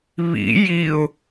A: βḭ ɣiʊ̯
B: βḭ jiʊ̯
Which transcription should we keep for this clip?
B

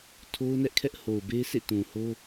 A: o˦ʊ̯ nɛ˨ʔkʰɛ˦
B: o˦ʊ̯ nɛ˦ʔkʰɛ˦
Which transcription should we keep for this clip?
B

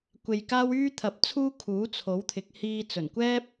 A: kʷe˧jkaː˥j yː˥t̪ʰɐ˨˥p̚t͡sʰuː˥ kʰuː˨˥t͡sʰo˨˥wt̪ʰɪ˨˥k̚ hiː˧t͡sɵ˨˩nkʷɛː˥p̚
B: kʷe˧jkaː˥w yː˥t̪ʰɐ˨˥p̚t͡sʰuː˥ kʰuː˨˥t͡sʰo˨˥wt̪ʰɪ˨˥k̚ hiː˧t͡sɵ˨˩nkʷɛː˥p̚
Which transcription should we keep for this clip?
B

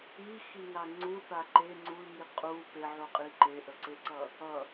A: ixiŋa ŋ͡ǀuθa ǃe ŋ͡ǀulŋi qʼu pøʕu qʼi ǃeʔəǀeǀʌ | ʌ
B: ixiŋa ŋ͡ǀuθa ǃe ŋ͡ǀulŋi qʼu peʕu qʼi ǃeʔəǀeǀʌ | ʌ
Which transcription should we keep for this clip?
B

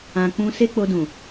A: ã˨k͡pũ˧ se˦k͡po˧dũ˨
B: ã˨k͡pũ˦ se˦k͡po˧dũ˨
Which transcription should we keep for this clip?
A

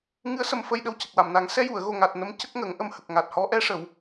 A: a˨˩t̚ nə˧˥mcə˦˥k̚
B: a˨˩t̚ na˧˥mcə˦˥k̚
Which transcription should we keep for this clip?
A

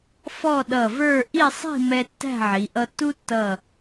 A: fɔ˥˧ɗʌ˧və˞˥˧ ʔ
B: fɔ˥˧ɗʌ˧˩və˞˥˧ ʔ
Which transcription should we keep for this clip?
B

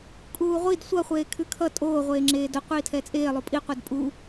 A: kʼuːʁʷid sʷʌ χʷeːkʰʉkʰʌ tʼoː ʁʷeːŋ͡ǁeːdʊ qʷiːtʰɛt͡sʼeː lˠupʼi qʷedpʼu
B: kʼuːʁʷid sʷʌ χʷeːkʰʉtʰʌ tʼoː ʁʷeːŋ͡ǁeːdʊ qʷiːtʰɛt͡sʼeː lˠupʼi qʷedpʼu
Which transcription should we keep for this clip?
A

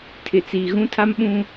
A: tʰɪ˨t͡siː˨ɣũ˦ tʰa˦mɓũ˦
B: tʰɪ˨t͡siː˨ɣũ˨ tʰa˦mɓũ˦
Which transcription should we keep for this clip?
A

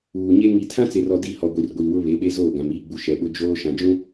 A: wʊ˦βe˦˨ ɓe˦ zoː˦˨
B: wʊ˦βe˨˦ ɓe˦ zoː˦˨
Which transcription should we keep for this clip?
B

